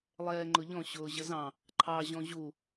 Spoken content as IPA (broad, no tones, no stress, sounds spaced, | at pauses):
lˠ ɛː ŋ͡ǃ ʊ ʎ ɔ̃ ɕ ʊː ʑ ə z ɑ̃ | ǃʰ ɑ ʑ ɔ̃ ʑ u